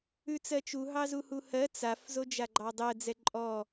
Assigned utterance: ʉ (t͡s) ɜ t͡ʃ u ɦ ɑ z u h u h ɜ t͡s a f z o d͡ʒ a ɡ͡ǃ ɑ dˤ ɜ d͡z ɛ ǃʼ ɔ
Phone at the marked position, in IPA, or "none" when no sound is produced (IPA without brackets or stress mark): t͡s